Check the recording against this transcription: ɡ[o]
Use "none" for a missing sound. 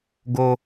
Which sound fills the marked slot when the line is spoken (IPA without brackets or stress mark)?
o